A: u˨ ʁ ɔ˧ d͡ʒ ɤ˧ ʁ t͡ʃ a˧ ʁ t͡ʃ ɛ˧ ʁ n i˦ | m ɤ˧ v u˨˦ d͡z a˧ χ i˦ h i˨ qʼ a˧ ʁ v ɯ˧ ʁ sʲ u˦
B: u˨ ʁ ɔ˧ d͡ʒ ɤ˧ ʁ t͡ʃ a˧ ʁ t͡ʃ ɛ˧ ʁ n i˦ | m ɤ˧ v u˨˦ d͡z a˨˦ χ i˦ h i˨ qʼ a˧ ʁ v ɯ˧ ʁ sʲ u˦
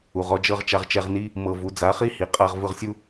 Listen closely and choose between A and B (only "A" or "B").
B